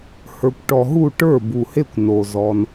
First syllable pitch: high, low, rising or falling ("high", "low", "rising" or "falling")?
low